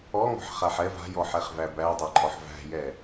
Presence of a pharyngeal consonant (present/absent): present